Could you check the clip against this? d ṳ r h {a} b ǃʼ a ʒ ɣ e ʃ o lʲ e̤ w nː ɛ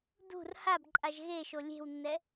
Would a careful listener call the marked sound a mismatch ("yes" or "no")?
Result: no